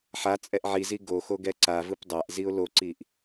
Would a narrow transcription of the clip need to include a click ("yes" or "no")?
yes